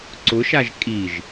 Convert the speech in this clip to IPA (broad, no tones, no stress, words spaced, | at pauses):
ǀʊʃaʒ kʼiʒ